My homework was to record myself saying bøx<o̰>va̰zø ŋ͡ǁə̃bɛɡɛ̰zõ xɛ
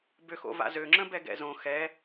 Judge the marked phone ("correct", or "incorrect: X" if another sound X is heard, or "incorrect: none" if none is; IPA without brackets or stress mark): correct